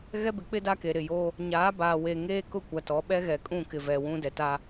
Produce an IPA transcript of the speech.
ɣ ɛ˦ b ɪ˨˦ k͡p ɪ˦ d a˦ k e˨ ɾ ɪ˨ j oː˦ | ɲ aː˨˦ b aː˨ w eː˨ ŋ eː˦ k ʊ˦˨ kʷ a˨ t ɔ˨˦ ɓ ɛ˦ ɣ ɛ˨ kʼ ũ˦˨ k ɪ˨ v ɛ˨ w ũ˦ d ɛ˨ t a˦

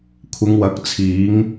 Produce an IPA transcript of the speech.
kʷʰ ɪ˨˧ ŋ w ɐ˨˥ k̚ t͡sʰ iː˨˧ ŋ

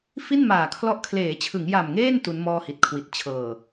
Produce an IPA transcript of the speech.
f i˥˩ n m aː˨˩ kʰ l ɔ˦˥ ʔ kʰ l eː˩˦ t͡ɕʰ ɯ˩˦ ŋ j a˨˩ m ŋ eː˥˩ n t u˦˥ n m ɔː˥˩ h i˨˩ t̚ kʰ w i˨˩ t̚ t͡ɕʰ ɤː˨˩

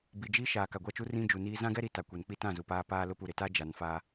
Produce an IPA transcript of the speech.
b i˨ d͡ʒ i˦ ʃ aː˨ k a˨ ɡʷ a˦ t͡ʃ u˦ r ĩ˦ d͡ʒ u˨ n iː˦ z ã˦ ɡ ɛ˦ ɾ i˨ t a˨ kʷ e˨ n k͡p i˦ t ã˦˨ z u˨ p aː˦ p aː˦ l ʊ˦ p u˨ ɾ ɪ˨ t a˦ d͡ʒ a˨ n f a˦

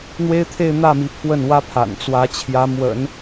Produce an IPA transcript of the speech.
n̪ w e˥ ɪ̯ t̪ʰ e˥˧ ɪ̯ n̪ ä˥˩ m i˧˥ pʰ w ə˥˩ n w ä˥ pʰ a̰˨˩ n t͡s w ä˧˥ t͡ɕʰ j ä˧˥ m w ə̰˨˩˦ n

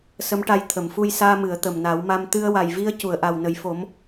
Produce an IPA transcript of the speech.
s ə˧˥ m ʈ a˧ j t̪ʰ ə˨˩˨ m f u˧ j s aː˧ m ɨ˨˩˨ ə̯ t̪ ə˨˩ m n a˨˩˦ w m a˧ m t̪ ɨ˧ ə̯ w a˨˩ j v i˧ ə̯ c u˨˩˨ ə̯ ʔ a˨˩ w n ə˨˩ j f o˨˩˦ m

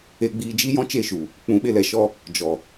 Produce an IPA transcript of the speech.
e˧ ɡ͡b iː˧ d͡ʒ i˦ j ɔ̃˦ t͡ʃ e˦˨ ʃ u˨ | k͡p ũ˨˦ ɓ e˧ l ɛ˨ ʃ ɔ˧ | d͡ʒ ɔ˨

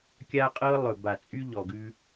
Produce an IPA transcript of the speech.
kʲ a˦ qʼ ɤ˦ lˠ ɵ˨ b a˨ t͡sʼ y˦ ʎ ɔ˨ ɡ ʉ˦

